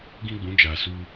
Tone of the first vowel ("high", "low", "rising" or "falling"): high